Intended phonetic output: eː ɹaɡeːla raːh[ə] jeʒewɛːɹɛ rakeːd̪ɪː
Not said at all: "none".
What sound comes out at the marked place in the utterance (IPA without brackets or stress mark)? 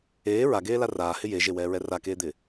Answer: ɪ